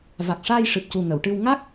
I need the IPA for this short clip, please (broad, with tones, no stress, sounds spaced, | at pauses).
v a˨˩ k̚ ʂ aː˧ j ʂ ɨ˨˩ p̚ c u˨˩ ŋ ə˨˩˨ w ʈ ɨ˧ w ŋ a˦˥ k̚